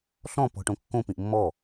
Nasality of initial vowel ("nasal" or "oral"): nasal